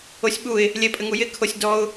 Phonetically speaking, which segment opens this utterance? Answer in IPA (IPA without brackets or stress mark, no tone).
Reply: o